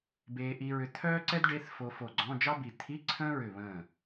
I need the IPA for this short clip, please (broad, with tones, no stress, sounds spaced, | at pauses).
b eː˧ ʔ i˧ ɹ ʏ˧ t̪ʰ œː˥ ǀ ɛ˥ d ɖ e˧˥˧ θ f o˧ f o˧˩ ɡ͡ǀ ɔ̃˧˥˧ d͡ʒ ɑ˥ b i˧˩ t̪ʰ i˧˥˧ ǀʰ ə̃ː˥ ɹ ʏ˧˩ β ə̃ː˧˩